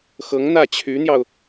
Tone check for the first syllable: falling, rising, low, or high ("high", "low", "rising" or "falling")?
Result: rising